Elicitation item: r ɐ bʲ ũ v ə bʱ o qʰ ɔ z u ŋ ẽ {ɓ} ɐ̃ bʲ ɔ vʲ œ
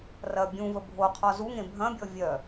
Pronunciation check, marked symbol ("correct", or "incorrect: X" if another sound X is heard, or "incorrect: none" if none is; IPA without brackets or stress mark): incorrect: bʱ